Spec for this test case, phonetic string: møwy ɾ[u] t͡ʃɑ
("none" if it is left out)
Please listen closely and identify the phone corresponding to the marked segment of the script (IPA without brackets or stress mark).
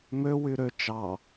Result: ø